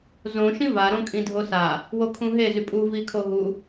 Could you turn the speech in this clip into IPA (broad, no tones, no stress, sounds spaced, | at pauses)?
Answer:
z õ ʃ ĩ v a ɾ õ kʼ ĩ dʱ o s a | w o kʰ ũ ɦ e z y pʼ u v i kʰ o ɦ u